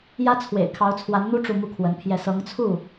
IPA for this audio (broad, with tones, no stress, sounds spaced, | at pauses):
j ä˥ t͡sʰ w ḛ˨˩ ɪ̯ kʰ ɑ˧˥ ʊ̯ t͡sʰ w a˧˥ n n̪ u˥ ʈ͡ʂ u˥˧ m u˥˩ kʰ w ə˧˥ n pʰ j ɛ˥˩ s ɤ˧˥ ŋ t͡sʰ u˥˩